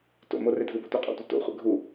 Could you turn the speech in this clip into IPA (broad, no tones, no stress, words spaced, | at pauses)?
to̰mo redʱɯbo tʷɛqʼo̰tʷʌ to̰χʷɛ̰ ɡʱu